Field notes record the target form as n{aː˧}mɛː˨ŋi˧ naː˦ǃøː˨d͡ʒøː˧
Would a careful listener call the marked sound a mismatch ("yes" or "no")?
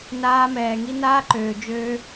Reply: no